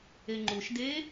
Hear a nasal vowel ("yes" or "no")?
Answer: no